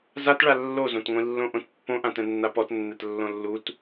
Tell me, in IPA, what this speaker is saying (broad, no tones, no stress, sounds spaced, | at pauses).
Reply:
z a t ɭ a lː o z õ t ŋʷ ĩ lː õ ʔ õ t pː õ ʔ ã t ɛ̃ nː a p ɔ t nː ɛ t lː õ lː u t